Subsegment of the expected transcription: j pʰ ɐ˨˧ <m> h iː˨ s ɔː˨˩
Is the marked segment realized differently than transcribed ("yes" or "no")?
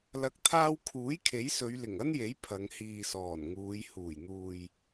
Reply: yes